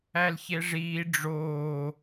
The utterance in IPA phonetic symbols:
ælçeʐiː ɖ͡ʐoː

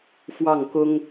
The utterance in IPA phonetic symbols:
fwɑ˥˩ŋkʊ˥ŋ

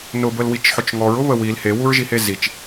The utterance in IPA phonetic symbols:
nʊbəlwit͡ʃħʊt͡ʃ ŋɔɹʊβə wil hewuɹʒihe zit͡ʃ

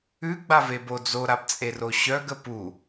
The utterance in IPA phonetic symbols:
ʉɡ͡bavebo d͡zoɾabt͡sʼero ɕœɡə pu

